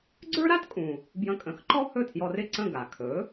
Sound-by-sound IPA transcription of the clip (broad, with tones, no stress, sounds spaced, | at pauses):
ɡ͡ǀ ə˞˥ ɾ a˥ t kʼ ũ˩ | b j ə̃˧ kʼ ə̃˩˥ x ǃ ɔ˥ h ɵ˥˩ tʰ j ɔ˧ r ɪ˥˩ ǀ ə̃˥˩ ɡ a˩ kʰ ɵ˩˥